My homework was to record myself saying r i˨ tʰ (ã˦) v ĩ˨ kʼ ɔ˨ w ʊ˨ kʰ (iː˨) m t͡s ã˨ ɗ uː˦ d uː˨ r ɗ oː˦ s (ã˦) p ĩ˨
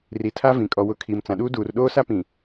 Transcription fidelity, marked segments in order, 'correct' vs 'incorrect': incorrect: a˦, correct, incorrect: a˦

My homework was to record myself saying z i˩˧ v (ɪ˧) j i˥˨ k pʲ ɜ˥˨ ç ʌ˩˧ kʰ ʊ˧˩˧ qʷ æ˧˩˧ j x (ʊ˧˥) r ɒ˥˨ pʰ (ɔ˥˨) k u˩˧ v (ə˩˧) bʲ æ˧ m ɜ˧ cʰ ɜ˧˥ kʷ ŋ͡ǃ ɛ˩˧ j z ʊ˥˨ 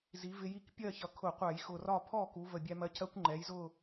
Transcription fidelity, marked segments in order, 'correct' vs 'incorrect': correct, incorrect: ʊ˨˩, correct, incorrect: ə˨˩

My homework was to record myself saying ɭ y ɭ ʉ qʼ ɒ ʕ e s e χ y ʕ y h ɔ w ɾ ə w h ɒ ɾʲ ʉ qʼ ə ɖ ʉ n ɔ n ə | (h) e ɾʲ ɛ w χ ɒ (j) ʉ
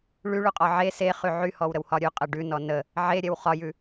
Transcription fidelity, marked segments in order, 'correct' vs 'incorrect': incorrect: ʕ, correct

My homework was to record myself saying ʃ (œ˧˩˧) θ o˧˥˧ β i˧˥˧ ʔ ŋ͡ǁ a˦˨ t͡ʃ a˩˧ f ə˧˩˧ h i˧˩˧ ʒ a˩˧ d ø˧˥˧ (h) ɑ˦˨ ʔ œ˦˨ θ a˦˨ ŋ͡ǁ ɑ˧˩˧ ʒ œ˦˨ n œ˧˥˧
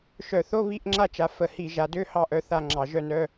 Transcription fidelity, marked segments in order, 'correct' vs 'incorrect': correct, correct

